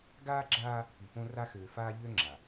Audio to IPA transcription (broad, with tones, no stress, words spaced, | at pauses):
ɡaː˦ɡ͡ǁaː˦ | py˨ põ˦ra˦xøː˨ faː˦ʎø˦ ŋ͡ǁa˨